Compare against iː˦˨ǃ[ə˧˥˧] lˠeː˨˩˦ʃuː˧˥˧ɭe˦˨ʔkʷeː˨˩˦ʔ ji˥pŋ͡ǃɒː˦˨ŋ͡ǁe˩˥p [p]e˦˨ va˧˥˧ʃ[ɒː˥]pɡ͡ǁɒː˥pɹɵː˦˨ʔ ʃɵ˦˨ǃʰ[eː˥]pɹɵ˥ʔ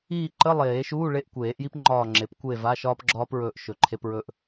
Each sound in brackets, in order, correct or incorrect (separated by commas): correct, incorrect, correct, incorrect